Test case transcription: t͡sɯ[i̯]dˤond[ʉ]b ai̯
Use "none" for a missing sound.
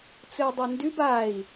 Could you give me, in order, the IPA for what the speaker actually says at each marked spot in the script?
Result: u̯, ʉ

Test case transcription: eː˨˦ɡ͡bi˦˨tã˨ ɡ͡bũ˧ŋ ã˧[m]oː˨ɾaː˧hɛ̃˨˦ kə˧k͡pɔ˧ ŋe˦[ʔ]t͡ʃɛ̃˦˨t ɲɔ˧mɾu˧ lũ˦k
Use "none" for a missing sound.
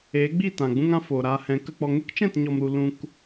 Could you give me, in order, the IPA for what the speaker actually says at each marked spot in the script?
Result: f, k

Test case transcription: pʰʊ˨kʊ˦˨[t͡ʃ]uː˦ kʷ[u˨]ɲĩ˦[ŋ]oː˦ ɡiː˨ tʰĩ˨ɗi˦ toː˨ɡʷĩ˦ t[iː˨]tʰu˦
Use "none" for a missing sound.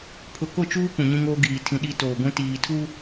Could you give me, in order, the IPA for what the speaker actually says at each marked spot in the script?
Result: t͡ʃ, ũ˨, ŋ, iː˨

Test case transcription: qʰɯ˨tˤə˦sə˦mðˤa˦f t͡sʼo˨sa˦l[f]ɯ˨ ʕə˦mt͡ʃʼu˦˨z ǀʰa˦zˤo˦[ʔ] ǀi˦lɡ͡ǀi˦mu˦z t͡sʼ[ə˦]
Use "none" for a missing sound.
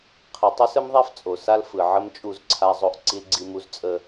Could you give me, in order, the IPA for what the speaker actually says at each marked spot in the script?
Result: f, ʔ, ə˦

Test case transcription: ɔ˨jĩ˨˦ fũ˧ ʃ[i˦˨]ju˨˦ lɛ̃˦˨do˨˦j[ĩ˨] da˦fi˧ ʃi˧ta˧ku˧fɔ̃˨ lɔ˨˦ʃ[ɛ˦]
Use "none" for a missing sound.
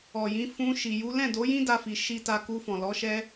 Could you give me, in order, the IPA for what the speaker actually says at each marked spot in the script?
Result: i˨, ĩ˦, ɛ˦

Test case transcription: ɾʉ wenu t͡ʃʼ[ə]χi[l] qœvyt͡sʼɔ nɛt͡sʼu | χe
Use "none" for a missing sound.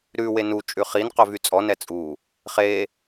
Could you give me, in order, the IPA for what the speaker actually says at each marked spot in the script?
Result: ʉ, n

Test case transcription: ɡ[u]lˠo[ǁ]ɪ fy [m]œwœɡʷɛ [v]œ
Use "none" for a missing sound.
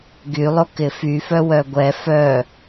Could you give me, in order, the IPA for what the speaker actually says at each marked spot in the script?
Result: y, k, f, f

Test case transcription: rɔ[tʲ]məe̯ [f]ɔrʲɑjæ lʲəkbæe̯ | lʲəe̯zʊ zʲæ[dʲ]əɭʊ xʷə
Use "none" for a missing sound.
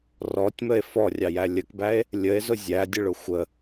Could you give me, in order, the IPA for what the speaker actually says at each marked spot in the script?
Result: tʲ, f, dʲ

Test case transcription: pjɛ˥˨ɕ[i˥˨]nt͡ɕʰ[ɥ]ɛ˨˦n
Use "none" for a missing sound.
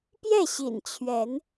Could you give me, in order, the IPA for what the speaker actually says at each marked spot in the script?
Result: ḭ˨˩, ɥ

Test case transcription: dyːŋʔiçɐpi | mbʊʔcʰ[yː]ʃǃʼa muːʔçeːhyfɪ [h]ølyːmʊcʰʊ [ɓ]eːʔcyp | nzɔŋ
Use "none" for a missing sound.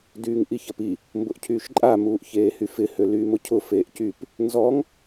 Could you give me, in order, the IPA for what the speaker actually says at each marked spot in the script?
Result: yː, h, f

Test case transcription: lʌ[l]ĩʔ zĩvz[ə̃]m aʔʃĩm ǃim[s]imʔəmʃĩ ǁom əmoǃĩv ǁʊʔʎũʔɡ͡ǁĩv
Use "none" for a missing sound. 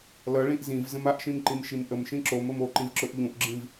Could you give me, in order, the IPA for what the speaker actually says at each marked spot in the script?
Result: ɭ, ə̃, ʃ

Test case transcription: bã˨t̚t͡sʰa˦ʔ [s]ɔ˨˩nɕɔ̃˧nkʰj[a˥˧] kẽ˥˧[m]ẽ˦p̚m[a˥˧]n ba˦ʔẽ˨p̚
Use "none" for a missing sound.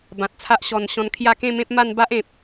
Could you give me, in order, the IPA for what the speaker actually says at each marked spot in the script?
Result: ɕ, a˥˧, m, a˥˧

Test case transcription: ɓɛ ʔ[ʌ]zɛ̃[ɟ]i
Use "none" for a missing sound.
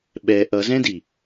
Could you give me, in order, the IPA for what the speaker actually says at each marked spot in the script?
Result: ʌ, d

